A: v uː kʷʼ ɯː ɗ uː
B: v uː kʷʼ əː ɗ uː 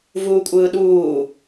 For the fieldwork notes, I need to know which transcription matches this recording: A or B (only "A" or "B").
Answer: A